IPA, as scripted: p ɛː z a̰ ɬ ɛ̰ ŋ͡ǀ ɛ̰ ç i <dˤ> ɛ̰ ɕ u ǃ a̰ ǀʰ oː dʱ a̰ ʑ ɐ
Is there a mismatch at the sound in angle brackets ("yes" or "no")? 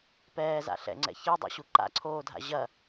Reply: no